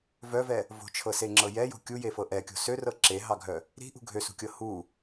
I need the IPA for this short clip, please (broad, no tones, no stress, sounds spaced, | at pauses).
v œ v ɛ | v o̤ t͡ʃʰ ɤ s e ŋ͡ǁ ɤ j ɛ j o̤ kʲ u j e f ɤ ʔ ɛ kʲ o̤ s ø r ɤ ǁ e ɦ ɑ ɡʱ œ | ɾ i̤ ʔ ṳ ɡʱ ø s ṳ kʲ ɤ h u